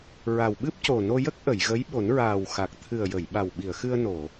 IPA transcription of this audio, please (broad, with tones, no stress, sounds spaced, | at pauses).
ɹ a˨˩ w ɓ ɨ˦˥ p̚ c o˨˩ n o˧ j ə˦˥ k̚ ʔ ə˨˩˨ j ɣ ə˧˥ j ɓ o˨˩˦ n ɹ aː˨˩ w x a˨˩ k̚ t̪ʰ ɨ˨˩ ə̯ j ə˨˩˨ j ɓ a˨˩ w ɓ i˨˩˨ ə̯ x ɨ˧ ə̯ n o˨˩˨